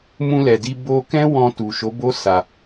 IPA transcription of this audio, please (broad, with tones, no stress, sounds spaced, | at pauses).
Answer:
m ũ˧ l ɛ˨ d i˧ b o˧ k ɛ̃˦ w ɔ̃˧ t u˨ ʃ o˨˦ b o˦ s a˧